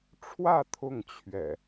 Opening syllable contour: falling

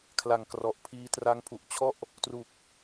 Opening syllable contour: low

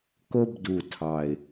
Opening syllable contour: high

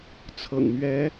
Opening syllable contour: low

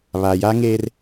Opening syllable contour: low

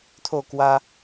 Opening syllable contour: falling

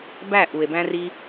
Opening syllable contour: falling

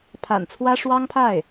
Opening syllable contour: low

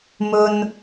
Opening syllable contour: high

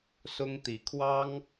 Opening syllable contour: high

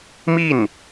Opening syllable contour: falling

